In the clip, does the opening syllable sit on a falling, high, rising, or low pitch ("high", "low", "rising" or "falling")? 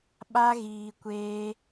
high